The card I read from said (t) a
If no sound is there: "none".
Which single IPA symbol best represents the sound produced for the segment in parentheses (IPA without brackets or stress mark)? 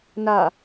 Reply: n